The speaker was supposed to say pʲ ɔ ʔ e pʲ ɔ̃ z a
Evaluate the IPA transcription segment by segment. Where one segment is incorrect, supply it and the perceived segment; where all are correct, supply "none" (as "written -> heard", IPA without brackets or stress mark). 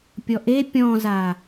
none